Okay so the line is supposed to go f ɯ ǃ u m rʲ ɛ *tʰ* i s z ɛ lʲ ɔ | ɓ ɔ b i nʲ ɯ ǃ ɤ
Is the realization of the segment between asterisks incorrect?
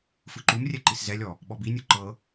yes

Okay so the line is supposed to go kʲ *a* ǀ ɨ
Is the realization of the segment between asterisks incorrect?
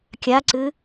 no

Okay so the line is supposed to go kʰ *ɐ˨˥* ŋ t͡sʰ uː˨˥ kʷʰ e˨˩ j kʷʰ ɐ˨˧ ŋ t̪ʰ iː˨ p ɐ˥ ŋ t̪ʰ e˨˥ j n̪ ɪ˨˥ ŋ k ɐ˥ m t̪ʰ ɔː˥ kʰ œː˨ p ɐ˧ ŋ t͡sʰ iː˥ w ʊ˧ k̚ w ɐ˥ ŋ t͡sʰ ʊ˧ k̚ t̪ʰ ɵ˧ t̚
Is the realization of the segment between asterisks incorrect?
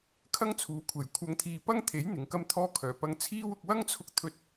yes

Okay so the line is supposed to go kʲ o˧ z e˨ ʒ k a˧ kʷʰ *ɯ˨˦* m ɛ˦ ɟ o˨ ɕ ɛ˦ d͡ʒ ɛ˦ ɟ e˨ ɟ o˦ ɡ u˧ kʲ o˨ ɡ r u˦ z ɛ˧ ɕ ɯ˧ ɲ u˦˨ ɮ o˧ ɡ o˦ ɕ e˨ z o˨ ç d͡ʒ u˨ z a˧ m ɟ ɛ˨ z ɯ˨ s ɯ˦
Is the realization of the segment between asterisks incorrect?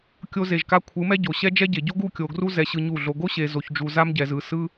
no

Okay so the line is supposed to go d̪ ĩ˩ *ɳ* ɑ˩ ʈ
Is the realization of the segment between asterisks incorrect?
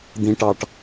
yes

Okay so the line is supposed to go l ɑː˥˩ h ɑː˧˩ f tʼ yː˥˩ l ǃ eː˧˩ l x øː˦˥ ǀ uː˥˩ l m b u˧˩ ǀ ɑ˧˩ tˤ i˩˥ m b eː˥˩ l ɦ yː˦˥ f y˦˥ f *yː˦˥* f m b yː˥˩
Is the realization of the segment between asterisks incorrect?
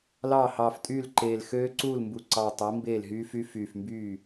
yes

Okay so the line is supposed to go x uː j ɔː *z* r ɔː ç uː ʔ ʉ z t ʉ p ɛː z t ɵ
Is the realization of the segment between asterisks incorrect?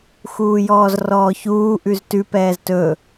no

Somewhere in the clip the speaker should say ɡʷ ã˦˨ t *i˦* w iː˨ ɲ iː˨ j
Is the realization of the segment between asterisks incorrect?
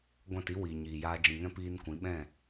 no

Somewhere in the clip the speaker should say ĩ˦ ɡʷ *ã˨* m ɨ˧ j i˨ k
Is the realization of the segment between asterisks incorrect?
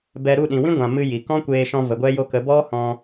no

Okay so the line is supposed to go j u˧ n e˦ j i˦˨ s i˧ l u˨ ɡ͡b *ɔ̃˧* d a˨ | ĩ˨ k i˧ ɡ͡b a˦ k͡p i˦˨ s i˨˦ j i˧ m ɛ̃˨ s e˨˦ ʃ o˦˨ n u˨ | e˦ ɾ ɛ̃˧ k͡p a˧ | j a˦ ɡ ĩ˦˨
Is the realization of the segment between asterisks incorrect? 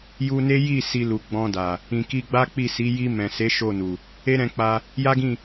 no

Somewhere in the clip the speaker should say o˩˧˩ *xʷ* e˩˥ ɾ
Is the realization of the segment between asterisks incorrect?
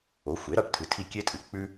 no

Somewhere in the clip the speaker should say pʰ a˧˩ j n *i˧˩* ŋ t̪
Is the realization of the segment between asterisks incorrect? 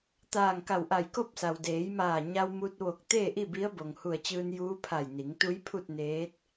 yes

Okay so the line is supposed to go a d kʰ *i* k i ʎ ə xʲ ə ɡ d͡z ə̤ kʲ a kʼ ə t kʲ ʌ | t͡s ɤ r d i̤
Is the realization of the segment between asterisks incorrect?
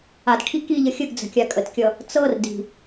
no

